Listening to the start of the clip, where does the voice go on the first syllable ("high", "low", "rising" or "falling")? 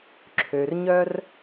low